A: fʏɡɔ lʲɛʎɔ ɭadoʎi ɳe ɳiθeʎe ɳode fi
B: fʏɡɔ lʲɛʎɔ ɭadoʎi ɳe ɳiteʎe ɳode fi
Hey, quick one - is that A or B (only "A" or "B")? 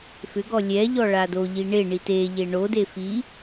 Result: B